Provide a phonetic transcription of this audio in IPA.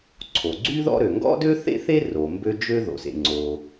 ǀʰ o˩ ɡ͡ǀ y˥ ð ɔ̰˥ ɾ ø˩ ŋ ɡ ɔ̰˥ d ø˥ θ ḛ˥ θ e˥ r o˩ m b ø˥ d͡ʒ ø˥ ð o̰˩ s ḛ˩ ŋ͡ǀ o˩

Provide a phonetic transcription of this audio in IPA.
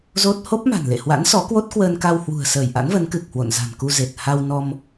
z o˦˥ t̚ h o˦˥ p̚ m a̤˨˩ n l ḛ˧˨ h w a̰˧˥ n s ɔ˨˦ k w o˦˥ t̚ k w əː˧ n k a˧ w h w ṳ˨˩ ə̯ s əː˧˩ j ʔ a̰˧˥ n v ə˨˦ n k ɨ˨˩ k̚ h w o̰˧˨ n z a̤˨˩ n k u˧ z e˨˩ t̚ h a˧ w n ɔ˧ m

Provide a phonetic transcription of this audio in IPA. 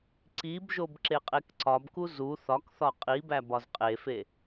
ǀ i b ʒ o b ǁ e qʼ e k ǀ ɒ b k u z u θ ɒ k θ ɒ qʼ i b æ b ɒ z qʼ e f e

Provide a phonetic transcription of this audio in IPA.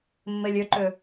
mː e lʲ ʏ ǃ ʏ

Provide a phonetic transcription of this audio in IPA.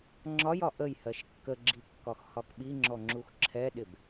ŋ͡ǁ ɒ j ɒ ʔ ə j h ɜ ʃ kː ə ɡ͡ǁ i kː ɒ x h ɒ k ɓ i ŋ͡ǁ ɔ ŋ͡ǁ u x ǁʰ ɛ ɗ ɪ b

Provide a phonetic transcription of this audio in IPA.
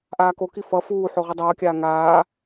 ʔ aː k o k i f ʌ f uː ħ o ʁ ɯ dˤ ʌː kʲ aː ŋ aː

